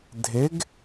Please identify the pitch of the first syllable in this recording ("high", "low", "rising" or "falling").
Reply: rising